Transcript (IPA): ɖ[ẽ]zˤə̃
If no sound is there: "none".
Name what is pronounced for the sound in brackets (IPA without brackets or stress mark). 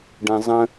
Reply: ɛ̃